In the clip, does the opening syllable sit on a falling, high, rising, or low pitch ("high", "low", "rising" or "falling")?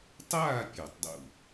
falling